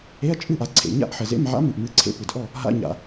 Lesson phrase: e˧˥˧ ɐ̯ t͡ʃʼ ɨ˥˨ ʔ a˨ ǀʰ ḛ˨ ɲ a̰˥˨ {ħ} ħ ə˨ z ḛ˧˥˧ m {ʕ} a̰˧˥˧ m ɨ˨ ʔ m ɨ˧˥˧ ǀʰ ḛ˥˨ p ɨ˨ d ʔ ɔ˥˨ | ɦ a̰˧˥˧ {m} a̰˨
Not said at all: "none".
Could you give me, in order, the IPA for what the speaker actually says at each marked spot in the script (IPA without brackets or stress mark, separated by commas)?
ʔ, ʕ, ɲ